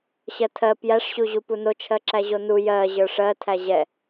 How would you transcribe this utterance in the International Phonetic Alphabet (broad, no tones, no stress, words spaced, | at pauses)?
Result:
ɕɜtʰɜ pjæʂɕuʑu punot͡ʃʰɜ ǁæʑonu jɜ ʑə˞ʂɜ tʰæʑɛ